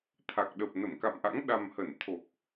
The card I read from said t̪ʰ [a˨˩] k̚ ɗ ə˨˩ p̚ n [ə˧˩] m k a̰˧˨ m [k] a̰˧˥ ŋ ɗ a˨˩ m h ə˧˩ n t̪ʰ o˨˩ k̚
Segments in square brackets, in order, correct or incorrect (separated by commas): correct, correct, incorrect